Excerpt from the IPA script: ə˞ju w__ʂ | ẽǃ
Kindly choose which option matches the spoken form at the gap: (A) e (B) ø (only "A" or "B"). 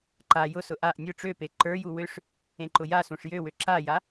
B